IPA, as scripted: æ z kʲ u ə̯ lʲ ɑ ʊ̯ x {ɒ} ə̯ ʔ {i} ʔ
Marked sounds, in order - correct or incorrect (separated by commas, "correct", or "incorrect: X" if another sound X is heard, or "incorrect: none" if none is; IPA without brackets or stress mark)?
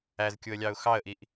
incorrect: ɑ, correct